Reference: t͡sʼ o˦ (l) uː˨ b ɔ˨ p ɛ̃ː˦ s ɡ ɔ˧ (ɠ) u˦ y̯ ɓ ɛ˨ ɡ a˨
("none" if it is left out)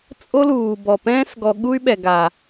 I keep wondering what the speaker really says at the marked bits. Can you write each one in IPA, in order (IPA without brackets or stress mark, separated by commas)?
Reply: l, ɠ